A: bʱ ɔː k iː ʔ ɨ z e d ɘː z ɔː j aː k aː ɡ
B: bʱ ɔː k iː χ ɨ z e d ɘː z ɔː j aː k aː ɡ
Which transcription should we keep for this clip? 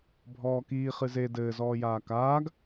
B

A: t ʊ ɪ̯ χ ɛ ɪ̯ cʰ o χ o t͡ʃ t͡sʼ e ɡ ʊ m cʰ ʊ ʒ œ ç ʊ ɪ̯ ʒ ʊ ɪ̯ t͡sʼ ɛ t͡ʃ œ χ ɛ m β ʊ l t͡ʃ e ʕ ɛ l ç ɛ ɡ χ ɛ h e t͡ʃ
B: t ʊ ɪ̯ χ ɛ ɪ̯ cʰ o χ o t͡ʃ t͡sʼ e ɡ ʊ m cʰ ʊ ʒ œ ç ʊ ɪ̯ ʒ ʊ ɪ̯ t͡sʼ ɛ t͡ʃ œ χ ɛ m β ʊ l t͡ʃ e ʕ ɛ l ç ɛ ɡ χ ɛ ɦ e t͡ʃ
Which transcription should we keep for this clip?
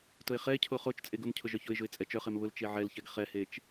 A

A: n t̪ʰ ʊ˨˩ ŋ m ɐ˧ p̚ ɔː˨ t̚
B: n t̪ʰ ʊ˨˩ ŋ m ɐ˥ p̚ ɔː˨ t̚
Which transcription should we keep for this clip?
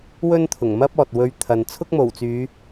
B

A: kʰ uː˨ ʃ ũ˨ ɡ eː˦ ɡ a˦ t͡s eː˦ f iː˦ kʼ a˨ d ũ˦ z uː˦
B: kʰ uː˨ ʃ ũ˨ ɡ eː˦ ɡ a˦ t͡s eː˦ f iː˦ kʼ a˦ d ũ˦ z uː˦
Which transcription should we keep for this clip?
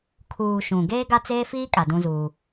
A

